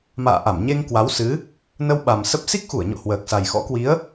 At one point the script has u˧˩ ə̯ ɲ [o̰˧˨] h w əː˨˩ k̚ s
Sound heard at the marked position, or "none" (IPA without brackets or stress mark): o̰˧˨